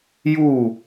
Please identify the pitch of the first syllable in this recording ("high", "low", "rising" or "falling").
falling